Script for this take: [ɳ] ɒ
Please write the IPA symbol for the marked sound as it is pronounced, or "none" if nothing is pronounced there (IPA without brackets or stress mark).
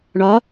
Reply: ɳ